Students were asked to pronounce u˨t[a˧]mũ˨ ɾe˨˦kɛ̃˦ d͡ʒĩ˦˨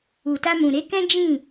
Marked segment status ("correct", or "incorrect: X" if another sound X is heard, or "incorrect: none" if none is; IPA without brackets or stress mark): correct